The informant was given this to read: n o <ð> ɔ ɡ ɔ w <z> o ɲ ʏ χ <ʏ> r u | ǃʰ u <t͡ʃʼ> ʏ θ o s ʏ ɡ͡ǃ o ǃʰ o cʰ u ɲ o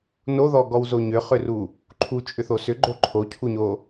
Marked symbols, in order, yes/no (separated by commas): yes, yes, yes, yes